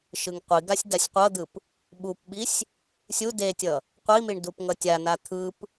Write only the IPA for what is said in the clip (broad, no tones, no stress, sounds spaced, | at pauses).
ʃ ɯ ŋ qʷ i ɡ a sʲ d a sʲ qʷ ʌ d̪ ɯ p | ɓ u p ɓ i sʲ | sʲ u d e tʲ ʌ | qʷ i m i ɳ d u p ŋ ʌ tʲ a n a t̪ʰ ɯ p